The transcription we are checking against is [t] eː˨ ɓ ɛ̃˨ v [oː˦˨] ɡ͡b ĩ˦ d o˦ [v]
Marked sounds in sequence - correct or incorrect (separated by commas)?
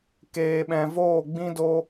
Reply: incorrect, correct, incorrect